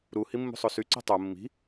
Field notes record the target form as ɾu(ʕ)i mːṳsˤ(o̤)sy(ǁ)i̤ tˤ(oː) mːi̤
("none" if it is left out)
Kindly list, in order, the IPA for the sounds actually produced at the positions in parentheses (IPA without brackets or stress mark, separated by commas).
h, o, ǀ, o